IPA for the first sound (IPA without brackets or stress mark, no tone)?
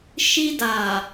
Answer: ʃ